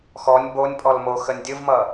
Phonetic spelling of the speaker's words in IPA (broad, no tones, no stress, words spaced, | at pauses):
xɔnʲ bonʲ pʼɔlmoxənʲ dʲɯvmʌ